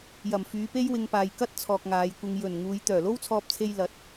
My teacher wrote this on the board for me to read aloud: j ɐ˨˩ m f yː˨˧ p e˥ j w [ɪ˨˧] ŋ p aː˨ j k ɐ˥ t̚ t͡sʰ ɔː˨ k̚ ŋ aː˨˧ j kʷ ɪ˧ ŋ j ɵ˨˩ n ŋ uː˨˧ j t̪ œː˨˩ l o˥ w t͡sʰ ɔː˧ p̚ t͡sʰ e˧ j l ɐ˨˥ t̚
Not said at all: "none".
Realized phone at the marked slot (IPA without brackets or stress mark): ɪ˧